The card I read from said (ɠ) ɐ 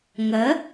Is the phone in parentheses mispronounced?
yes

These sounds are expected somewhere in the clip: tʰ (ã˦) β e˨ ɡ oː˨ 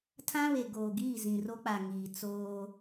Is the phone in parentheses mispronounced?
no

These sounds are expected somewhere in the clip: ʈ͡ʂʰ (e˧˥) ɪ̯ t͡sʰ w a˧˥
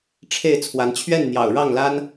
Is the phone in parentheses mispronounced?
yes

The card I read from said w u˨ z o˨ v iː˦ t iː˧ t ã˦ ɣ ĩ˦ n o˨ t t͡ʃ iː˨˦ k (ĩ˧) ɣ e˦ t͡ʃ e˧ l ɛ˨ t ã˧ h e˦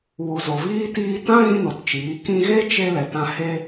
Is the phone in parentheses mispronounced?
no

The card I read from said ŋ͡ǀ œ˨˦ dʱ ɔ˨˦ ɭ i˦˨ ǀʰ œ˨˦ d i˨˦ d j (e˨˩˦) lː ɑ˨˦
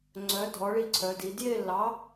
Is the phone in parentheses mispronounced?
yes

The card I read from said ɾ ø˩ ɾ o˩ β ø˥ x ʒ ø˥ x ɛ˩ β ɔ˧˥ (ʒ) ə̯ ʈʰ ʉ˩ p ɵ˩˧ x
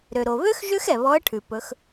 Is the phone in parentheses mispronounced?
yes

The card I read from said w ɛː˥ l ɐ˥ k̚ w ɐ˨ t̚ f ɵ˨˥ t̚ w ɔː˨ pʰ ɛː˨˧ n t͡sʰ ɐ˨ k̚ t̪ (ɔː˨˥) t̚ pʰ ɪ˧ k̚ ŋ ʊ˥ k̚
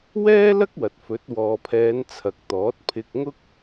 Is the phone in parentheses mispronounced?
no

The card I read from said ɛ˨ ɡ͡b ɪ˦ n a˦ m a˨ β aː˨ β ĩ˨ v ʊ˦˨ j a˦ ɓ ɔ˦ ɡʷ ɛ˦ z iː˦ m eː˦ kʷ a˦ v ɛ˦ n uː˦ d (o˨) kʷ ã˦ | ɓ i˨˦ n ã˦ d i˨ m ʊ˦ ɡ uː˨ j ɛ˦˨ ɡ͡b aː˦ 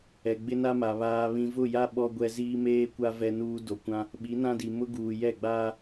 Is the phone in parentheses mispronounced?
no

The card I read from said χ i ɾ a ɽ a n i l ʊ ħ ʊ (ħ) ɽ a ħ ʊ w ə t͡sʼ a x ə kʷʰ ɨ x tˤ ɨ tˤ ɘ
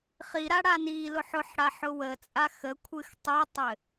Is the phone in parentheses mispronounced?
no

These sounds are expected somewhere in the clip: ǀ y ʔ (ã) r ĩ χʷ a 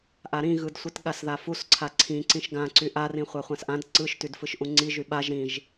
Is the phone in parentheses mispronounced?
yes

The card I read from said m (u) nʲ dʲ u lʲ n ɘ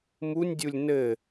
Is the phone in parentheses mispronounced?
no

